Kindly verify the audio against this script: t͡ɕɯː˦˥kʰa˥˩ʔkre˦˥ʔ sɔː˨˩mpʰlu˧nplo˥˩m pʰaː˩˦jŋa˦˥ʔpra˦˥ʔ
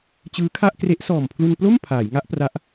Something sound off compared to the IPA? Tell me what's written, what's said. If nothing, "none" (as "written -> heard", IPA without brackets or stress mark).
none